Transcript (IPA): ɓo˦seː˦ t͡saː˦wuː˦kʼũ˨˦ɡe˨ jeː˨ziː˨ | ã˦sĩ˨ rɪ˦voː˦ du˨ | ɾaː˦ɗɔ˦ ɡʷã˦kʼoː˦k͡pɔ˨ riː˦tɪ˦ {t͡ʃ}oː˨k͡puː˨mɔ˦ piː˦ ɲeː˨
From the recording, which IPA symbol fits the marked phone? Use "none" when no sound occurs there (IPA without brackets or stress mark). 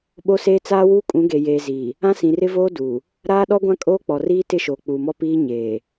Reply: ʃ